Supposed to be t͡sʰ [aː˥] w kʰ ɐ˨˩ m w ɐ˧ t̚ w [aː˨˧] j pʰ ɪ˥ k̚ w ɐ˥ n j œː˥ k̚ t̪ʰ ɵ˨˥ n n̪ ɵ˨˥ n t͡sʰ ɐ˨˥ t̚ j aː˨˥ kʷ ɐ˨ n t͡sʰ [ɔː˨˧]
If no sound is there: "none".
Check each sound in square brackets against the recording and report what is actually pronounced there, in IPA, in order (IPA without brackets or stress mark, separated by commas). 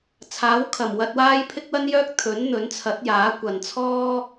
aː˨˥, aː˥, ɔː˥